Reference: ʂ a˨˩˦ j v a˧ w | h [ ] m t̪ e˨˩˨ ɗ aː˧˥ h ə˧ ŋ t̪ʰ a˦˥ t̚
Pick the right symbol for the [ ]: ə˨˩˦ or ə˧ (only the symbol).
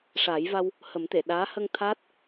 ə˨˩˦